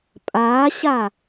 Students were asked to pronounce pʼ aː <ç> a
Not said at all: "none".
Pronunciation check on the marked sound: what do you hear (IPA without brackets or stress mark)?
ɕ